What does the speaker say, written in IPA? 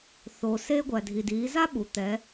θ o˩ s eː˧ ɡʷ æ˩ dʱ i˩ d iː˩˧ z a˥ ɓ uː˩ t̪ ɛ˩˧

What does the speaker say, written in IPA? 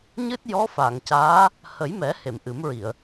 ɲ ɨ˦˥ t̚ j ɔ˧˥ f a˨˩˨ ŋ c aː˧˥ | h ə˨˩˦ j m ɛ˨˩˦ h e˨˩˨ m ʔ ɨ˨˩˦ m ɹ i˨˩˨ ə̯

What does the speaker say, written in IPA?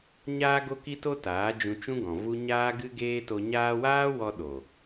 ɲ aː˦ ɡ o˦ k i˦ t o˦ t aː˨˦ d͡ʒ ũ˧ t͡ʃ ũ˦ ɡ ɔ̃˨ v u˦ ɲ aː˦ ɡ ɨ˦ ɡ eː˦ t o˧ ɲ aː˦ w aː˦ w ɔ˧ ɗ o˨

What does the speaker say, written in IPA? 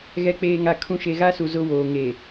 ɣ ɛ˨ k͡p eː˨ ŋ a˨ kʰ ũ˨ ʃ e˨ ɣ a˦ s u˨ z ʊ˦ w oː˨ ŋ e˨

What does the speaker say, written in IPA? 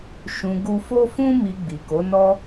ʃ ũ˨ ɡ u˨ f o˧ f ũ˧ m i˨ ɡ͡b i˨ k o˨˦ n ɔ˦

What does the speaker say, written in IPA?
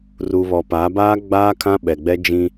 r uː˨ β ɔ˨ p aː˨˦ b aː˦ ɡ͡b aː˦ kʰ ã˦ ɓ ɛ˨ ɡ͡b ɛ˦ d͡ʒ ĩ˦

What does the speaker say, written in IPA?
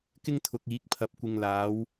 k ɪ˥ ŋ t̪ʰ ʊ˨ k̚ iː˨˥ k̚ pʰ ɐ˨ p̚ kʷ ɪ˨ ŋ l aː˨˧ w

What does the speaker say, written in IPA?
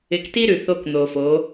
ɪ˨ k t i˦ ɾ ʉ˨ θ o˦ k n̪ o˨ f o˨˦

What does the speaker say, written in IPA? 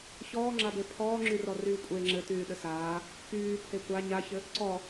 ç ɔː ŋ͡ǁ a b e pʰ ɔː ŋ͡ǁ y r ɔ r yː kʷʼ e ŋ͡ǁ ɘ t yː ɗ ɘ s aː | p yː pʰ e kʷ a ɲ a ç ɘ | ǀ ɔ

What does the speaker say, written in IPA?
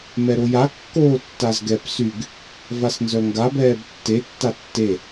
m ɛ ɾ o j a kː oː tː a z ɡ ɛ p s y ɡ | v a s n z œ ŋ ɡ a b ɛː b tː e tː a tː e

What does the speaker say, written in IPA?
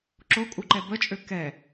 ǁ o kʼ u ǃ ɛ b ə t͡ʃʼ ø k ɛ

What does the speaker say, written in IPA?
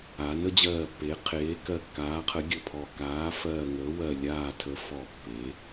aː˩˧ n ə˩˧ d͡ʑ ɜː˨˩ pː e˩˧ qʰ eː˩˧ k ɜ˨˩ kː aː˩˧ qʰ ə˩˧ ɡʲ ə˨˩ pʰ ɔ˨˩ k aː˩˧ f ɜː˨˩ ŋ əː˩˧ w ɜ˨˩ lʲ aː˨˩ tʰ ə˩˧ f ɔ˨˩ pː e˩˧

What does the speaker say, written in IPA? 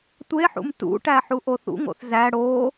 tʷ e ħ ṵ m t ṵ ʈ æ ħ u ʔ o θ ṵ ŋ o̰ θ z æ ɽ o

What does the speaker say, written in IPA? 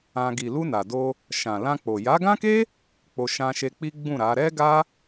ã˧ ɡ i˨ l u˧ n a˨ d o˧ | ʃ ã˨ l ã˧ k͡p o˨ j a˨˦ ɡ ã˦ k e˦ | k͡p o˧ ʃ ã˧ ʃ e˧ k͡p i˦ ɡ͡b ũ˦˨ ɾ a˨˦ ɾ ɛ˦ ɡ a˦

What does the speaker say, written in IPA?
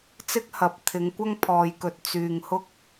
t͡s ɪ˥ k̚ h ɐ˧ p̚ t̪ʰ ɪ˨˧ ŋ kʷ ɐ˥ ŋ pʰ ɔː˨ j k ɵ˨ t̚ t͡s yː˨ ŋ h ʊ˥ k̚

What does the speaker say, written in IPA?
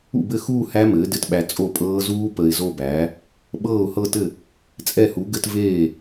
ṵ˥˩ b ɘ˥˩ x uː˥˧ h æ˦˥ m ɘː˩˥ d ɘ˨ t ɓ æ˨ t͡sʼ o˥˩ pʼ ɤː˦˥ z uː˦˥ p ə˨ ɪ̯ z o˥˧ b æː˩˥ | ɓ ɤː˥˩ ʊ̯ h ɤ˥˧ t ɘ˥˩ | t͡sʼ ɛ˥˩ h u˩˥ ɡ ɘ˥˧ t v eː˥˩

